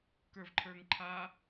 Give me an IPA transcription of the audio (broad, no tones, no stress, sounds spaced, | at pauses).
k ə˞ v ǃʰ ə˞ ŋ ǃʰ a